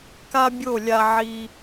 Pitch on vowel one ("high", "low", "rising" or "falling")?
high